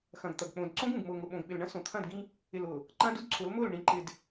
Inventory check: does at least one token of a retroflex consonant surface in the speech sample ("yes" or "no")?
yes